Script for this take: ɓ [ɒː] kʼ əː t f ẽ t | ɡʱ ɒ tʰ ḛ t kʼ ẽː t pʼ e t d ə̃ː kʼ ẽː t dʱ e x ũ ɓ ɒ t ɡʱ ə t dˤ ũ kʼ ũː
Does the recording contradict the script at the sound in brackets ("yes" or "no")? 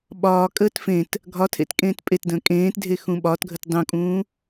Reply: no